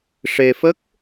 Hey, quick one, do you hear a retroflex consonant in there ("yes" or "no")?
yes